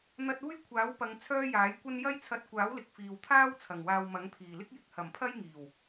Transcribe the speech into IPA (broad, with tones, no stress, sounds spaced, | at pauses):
n̪ ɐ˧ t̚ uː˥ j kʷʰ aː˨˥ w p ɐ˨˧ ŋ t͡sʰ œː˥ j aː˨˥ j kʷ ɐ˥ n j ɐ˥ j t͡sʰ ɐ˧ t̚ kʷ aː˨˥ w l ɪ˨ k̚ f iː˨ w t̪ʰ aː˥ w t͡sʰ ɐ˨˩ ŋ w aː˧ w m ɐ˨˥ ŋ t̪ʰ iː˨˩ l ɪ˥ k̚ j ɪ˨˥ k̚ h ɐ˨˩ m pʰ ɐ˥ j ŋ iː˨˩ w